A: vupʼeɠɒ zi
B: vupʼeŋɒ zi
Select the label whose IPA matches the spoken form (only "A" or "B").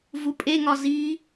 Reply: B